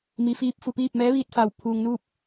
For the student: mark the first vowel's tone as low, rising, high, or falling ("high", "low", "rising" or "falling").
low